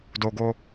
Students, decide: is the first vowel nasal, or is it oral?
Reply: oral